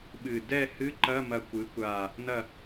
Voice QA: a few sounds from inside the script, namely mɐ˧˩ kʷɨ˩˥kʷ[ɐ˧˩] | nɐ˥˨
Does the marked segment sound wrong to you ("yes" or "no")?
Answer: yes